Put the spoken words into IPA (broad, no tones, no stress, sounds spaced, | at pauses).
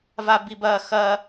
v a b i b ɐː x ɐː